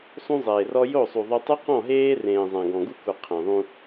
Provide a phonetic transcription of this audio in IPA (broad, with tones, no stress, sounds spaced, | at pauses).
sˤ ũ˦ zˤ eː˨ r ɔ˦ j o˦˨ sˤ u˨ ðˤ y˦ tˤ u˦ q ɔ̃˦˨ ɦ eː˦ r ẽː˨ zˤ ã˨ ɡ ɔ̃˨ ɡ u˦ k u˨ qʰ ẽ˨ ðˤ ũ˦